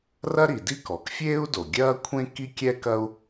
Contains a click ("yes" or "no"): no